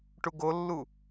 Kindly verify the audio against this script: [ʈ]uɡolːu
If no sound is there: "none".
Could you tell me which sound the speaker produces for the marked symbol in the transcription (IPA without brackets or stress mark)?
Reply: ʈ